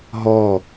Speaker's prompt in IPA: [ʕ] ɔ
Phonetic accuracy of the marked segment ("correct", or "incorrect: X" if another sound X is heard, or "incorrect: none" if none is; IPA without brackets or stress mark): incorrect: ɦ